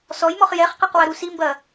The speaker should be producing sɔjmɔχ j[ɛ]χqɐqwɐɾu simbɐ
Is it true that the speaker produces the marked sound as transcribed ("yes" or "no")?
yes